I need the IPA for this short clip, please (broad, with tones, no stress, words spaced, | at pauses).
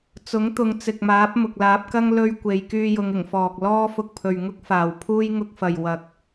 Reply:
t͡sʊ˨˥ŋt̪ʊ˨˧ŋt͡sɪ˨k̚maː˨˥p̚ mʊ˨k̚laː˨˥p̚kɐ˥ŋ lɵ˥ɥ kʷe˨˧j kyː˧jʊ˨˧ŋɪ˨˩ŋfɔː˨k̚ lɔː˥ fʊ˧k̚pʰɵ˨ɥ ŋʊ˥k̚faː˨wpʰuː˥j ŋʊ˧k̚fɐ˨j wɐ˧k̚